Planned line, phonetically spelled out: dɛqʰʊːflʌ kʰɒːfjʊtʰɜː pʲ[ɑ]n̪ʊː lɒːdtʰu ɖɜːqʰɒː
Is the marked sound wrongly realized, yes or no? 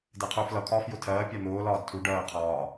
no